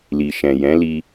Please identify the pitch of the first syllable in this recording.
low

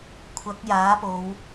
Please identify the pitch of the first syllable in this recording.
rising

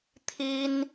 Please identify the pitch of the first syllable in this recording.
high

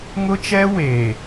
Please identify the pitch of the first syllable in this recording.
high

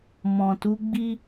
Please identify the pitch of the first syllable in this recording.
low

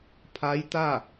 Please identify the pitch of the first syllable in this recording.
rising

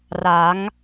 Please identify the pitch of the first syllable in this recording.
rising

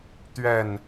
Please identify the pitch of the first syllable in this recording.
falling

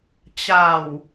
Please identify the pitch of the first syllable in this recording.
low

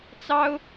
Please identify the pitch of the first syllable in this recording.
high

